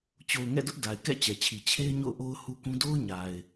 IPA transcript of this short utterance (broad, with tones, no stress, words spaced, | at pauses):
t͡ɕo˨ʊ̯ŋɛ̰˦˨dʊ˦ʔ da˨ɪ̯kɛ̰˦˨ t͡ɕɛ˨t͡ɕʰi˨ t͡ɕʰe˦ɪ̯ ɲo̰˦˨ʊ̯ʔo˦ʊ̯hu˦kũ˦ do˦ʊ̯ɲa˨ɪ̯